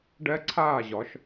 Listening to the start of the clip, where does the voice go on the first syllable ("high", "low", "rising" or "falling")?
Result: high